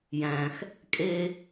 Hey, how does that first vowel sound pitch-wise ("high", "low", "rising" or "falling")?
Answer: high